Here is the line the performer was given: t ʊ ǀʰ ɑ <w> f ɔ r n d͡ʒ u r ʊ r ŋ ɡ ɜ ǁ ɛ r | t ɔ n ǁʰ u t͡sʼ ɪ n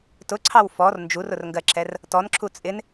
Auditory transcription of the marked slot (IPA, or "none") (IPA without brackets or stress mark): w